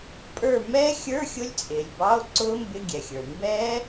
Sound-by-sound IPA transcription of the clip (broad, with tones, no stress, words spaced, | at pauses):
pʼə˞˦˨ mɛː˦˥xʲə˞˧˥˧ xʲʊ˦˥lʲt͡sʼɪː˩lʲbɑ˧˥˧o̯ ǀʊː˦˥mbɪ˧˥˧ɡʲɛ˩xʲə˞˩ mbɛː˦˥